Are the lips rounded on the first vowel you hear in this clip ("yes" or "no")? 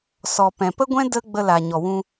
yes